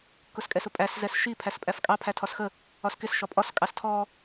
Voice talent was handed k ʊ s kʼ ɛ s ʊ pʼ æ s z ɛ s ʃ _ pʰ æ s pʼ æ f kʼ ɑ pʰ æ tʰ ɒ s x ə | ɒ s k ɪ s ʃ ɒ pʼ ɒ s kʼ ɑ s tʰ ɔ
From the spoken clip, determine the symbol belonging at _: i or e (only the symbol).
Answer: i